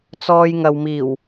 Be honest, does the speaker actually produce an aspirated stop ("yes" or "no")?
no